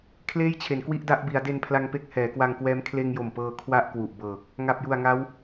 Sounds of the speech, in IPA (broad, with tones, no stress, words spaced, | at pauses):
kʰleː˥˩jt͡ɕʰe˩˦nkwi˥˩ʔda˦˥ʔ bi˩˦a̯de˧npʰla˧ŋpe˦˥k̚ hɛː˩˦kwa˧ŋkwɛː˦˥m kʰleː˧ŋjo˨˩m pɤː˧ kʰwa˥˩ʔkwu˨˩ʔbɤː˨˩k̚ | ŋa˨˩p̚ju˨˩a̯ŋa˦˥w